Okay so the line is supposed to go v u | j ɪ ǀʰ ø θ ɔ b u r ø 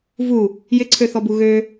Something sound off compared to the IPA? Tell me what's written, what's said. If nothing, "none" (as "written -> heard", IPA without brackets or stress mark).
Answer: r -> ɣ